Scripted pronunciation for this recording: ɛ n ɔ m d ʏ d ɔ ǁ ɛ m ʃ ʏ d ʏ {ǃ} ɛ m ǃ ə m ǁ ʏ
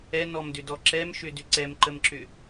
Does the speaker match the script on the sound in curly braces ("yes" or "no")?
no